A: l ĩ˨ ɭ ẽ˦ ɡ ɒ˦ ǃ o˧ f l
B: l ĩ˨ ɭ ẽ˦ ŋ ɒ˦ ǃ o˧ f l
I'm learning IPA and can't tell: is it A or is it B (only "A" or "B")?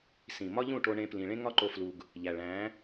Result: B